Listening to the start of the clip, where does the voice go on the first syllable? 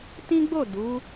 high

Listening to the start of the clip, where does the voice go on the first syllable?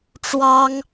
high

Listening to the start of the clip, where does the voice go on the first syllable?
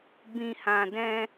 low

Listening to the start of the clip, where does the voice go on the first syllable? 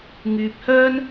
low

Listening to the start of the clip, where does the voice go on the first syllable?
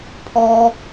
high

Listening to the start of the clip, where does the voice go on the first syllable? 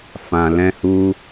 low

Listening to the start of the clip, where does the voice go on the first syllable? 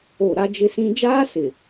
falling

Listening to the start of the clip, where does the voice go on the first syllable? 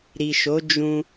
low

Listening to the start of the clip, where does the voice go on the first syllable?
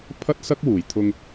high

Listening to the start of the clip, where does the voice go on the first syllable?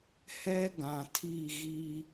high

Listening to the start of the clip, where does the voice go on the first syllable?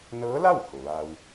rising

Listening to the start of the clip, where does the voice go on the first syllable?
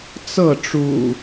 falling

